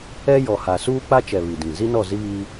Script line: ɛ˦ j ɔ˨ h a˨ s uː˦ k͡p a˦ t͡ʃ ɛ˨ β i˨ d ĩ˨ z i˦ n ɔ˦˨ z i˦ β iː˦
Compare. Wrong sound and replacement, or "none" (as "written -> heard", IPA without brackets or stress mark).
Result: none